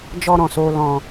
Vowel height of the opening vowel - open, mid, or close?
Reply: mid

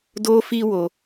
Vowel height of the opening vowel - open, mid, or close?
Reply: mid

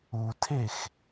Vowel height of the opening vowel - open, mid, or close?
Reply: close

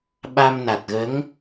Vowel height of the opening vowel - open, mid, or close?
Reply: open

